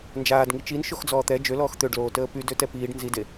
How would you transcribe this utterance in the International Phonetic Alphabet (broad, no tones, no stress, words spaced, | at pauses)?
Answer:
nd͡ʒaːdŋi t͡ʃin ʃoxd͡zɔːt̪ɛ d͡ʒølɔːx t̪øɖloːtəː py døtɛpiːɖ nzide